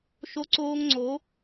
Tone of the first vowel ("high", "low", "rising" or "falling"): high